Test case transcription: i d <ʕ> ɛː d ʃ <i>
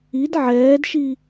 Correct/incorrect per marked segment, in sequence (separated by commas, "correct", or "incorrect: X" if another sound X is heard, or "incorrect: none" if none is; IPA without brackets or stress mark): correct, correct